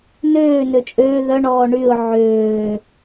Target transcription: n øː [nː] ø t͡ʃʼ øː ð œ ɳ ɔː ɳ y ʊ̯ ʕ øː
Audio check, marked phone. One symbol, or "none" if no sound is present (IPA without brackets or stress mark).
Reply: n